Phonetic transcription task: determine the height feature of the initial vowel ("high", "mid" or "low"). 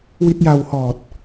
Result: high